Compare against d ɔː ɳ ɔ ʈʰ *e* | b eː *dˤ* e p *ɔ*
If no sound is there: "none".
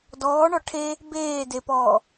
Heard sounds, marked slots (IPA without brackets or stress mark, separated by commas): e, d, ɔː